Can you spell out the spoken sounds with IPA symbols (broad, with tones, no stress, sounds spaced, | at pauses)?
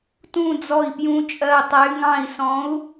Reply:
t ũ˧˩ d͡z ɔ˧˩ i̯ p j ũ˨˦ t͡ʃʼ ɜ˧˩ tˤ ɛ˨˦ y̯ ŋ ɑ̃˧˩ i̯ s ɔ̃˨˦ u̯